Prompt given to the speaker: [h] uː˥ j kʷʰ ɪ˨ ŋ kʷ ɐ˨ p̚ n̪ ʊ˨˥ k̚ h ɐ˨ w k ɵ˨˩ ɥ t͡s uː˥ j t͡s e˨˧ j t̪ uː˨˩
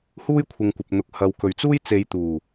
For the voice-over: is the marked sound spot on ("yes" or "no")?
yes